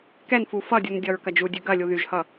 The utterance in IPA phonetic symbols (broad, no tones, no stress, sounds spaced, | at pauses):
k ɛ n f u f ʌ dʲ u n dʲ ʌ ɹ k ɐ d͡ʒ u dʲ ʉ ɡ ɐ lʲ u ð y ʒ h ʌ